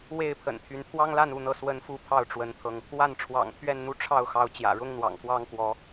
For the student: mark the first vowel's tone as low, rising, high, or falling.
falling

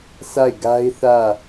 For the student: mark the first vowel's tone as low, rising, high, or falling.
falling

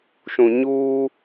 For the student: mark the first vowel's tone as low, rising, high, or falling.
low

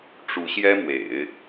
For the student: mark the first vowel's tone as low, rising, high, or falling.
rising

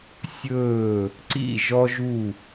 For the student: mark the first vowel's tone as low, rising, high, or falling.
falling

